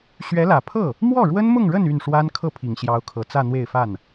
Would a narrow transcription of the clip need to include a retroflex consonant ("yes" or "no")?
yes